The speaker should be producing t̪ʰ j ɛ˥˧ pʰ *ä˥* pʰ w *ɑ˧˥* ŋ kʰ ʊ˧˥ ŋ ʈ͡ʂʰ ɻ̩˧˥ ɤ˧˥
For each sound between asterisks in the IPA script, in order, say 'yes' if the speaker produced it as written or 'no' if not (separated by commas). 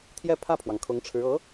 no, no